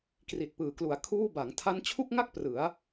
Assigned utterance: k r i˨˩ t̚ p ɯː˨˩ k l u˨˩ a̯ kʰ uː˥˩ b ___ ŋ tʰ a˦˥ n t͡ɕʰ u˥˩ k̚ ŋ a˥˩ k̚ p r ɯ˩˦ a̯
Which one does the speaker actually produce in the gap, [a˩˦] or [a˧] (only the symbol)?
a˩˦